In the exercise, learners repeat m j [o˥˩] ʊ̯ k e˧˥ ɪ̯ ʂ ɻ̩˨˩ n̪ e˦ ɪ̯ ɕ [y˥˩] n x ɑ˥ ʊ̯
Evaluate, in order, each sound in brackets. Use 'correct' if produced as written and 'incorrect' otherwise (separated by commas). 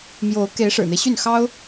incorrect, correct